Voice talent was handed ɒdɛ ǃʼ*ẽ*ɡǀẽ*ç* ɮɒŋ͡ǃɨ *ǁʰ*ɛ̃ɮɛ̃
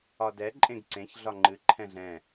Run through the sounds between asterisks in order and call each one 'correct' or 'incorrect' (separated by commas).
correct, correct, incorrect